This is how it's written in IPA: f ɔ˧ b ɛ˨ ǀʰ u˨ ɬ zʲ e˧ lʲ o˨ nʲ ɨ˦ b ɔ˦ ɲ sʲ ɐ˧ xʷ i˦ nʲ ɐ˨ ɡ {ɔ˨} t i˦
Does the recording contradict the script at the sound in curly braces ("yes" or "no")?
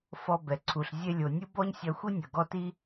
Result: yes